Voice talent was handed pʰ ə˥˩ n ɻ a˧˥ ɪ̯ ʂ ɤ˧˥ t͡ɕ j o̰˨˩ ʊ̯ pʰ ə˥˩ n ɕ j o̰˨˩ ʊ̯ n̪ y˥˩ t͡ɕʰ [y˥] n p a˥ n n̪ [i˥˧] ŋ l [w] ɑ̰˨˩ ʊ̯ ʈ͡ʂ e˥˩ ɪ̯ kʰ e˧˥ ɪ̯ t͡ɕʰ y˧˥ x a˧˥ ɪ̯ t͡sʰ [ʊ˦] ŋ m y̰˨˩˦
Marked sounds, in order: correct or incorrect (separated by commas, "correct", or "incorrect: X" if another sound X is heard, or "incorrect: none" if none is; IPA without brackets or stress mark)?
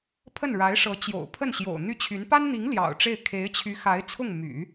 incorrect: y˧˥, incorrect: i˧˥, incorrect: j, incorrect: ʊ˥˩